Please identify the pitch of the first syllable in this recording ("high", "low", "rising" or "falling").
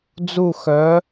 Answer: falling